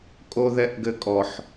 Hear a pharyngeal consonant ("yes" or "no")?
yes